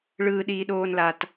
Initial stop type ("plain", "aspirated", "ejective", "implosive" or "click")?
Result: implosive